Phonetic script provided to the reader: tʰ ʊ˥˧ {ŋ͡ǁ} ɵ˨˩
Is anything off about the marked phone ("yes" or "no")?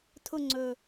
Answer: yes